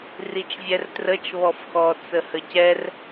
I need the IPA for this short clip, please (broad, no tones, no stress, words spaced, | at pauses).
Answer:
rit͡ʃvʲɛrtrət͡ʃ βɔfxɔ t͡səhəcɛr